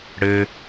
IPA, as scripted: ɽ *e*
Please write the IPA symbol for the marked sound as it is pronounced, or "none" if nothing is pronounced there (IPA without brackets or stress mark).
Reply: ɘ